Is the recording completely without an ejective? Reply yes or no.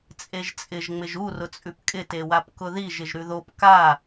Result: no